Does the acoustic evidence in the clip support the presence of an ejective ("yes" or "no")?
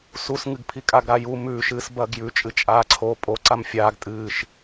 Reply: yes